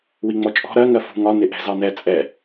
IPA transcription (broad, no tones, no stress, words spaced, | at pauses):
wiŋ͡mɔt͡ʃʼɔ̤ ɾɜ ŋɜfṳ ŋɒ nɪʔɛ̤zɑnɛ t͡sʼɛ